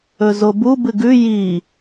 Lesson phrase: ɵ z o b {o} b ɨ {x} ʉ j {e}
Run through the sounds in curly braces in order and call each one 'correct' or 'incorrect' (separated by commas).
incorrect, incorrect, incorrect